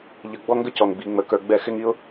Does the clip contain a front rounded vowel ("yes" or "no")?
no